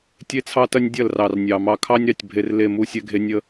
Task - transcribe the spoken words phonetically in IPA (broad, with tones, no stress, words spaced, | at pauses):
tʲe˦t͡sʰɑ˦tɐ˦nʲ dʲɐ˦˨lrɑ˨rnʲɑ˨ mɑ˨kʰɑ˦nʲɾɑ˨tʲ bʱe˨r le˦˨mu˦ sʲɛ˦ɡʱe˦ nʲə˦